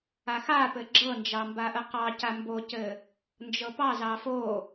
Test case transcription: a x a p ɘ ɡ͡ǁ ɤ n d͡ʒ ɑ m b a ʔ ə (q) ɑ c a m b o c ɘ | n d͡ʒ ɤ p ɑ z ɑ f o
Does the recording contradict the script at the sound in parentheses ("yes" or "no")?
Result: no